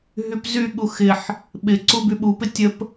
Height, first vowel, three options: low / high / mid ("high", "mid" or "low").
high